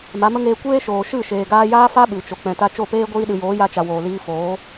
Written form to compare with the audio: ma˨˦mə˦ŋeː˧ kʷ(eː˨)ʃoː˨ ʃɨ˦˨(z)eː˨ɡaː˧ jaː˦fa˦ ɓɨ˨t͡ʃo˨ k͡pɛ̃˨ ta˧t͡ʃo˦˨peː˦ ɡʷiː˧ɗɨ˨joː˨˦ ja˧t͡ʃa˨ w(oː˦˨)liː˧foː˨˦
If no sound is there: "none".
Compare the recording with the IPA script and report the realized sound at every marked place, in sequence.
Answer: eː˦, ʃ, oː˨

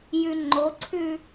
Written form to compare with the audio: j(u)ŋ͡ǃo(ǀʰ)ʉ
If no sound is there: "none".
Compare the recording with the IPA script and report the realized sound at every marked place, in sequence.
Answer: ʉ, ǀʰ

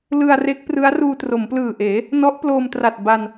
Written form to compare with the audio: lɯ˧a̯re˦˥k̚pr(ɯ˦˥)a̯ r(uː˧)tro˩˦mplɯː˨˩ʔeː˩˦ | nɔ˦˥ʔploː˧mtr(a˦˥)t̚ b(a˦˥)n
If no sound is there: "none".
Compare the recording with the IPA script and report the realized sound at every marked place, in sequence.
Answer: ɯ˦˥, uː˧, a˨˩, a˧

